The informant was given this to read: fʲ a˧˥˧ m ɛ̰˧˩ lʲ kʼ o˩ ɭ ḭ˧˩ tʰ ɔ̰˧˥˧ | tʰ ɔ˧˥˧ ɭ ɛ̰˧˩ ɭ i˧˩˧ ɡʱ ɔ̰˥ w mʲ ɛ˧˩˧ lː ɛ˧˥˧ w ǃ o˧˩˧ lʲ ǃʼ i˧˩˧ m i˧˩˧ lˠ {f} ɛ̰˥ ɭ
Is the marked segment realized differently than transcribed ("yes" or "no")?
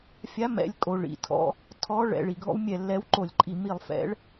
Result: no